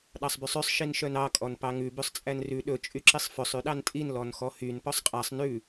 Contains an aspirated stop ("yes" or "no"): no